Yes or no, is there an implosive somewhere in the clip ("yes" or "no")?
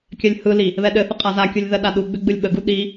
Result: yes